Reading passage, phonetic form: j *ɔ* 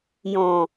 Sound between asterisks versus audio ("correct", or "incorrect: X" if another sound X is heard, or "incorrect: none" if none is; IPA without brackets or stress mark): incorrect: ɔ̃